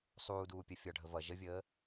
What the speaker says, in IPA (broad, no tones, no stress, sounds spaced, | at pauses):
sˤ uː d uː pʲ ɜ fʲ ɒ ɖʱ ə v ʌ ʒ ə vʲ əː